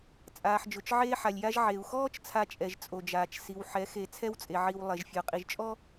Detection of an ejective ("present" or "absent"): present